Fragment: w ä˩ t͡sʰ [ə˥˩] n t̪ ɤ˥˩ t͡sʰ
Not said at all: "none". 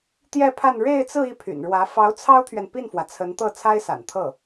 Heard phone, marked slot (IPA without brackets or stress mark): ə˧˥